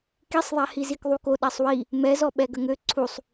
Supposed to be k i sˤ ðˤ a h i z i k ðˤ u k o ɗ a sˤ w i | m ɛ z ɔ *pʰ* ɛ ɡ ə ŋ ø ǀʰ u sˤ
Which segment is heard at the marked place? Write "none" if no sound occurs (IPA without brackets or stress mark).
ɓ